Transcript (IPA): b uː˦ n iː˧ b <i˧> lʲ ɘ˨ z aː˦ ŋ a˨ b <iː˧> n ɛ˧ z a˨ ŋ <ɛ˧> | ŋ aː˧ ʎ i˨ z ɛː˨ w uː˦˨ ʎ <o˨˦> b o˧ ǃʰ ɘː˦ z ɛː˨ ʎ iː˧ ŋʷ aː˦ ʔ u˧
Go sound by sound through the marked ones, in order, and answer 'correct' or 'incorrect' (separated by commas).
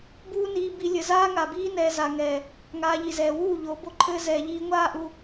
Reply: correct, incorrect, incorrect, correct